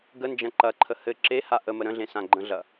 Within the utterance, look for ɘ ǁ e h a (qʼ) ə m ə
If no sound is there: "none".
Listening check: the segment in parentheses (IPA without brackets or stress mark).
ʔ